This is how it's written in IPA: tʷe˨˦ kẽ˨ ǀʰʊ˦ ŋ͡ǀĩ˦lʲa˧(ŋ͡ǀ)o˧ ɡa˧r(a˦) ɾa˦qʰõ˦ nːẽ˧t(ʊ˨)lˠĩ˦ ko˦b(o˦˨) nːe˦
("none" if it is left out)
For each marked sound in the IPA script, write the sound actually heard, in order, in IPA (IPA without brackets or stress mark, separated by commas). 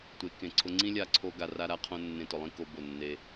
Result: ǀʰ, a˦, ʊ˨, o˦˨